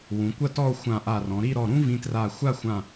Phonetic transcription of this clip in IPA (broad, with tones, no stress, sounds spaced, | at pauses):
w ũ˩˧ kʷ ɐ˥˧ t ɔ˥˧ o̯ xʷ ã˧˩ ʔ a˧˩ r ɔ̃˩˧ ɾ i˥˧ ɾ ɔ˧˩ ɾ ũ˥ v ĩ˧ t r a˧˩ xʷ a˥˧ xʷ ã˧˩